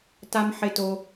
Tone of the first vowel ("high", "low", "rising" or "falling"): high